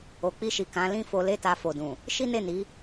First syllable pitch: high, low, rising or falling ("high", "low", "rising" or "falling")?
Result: low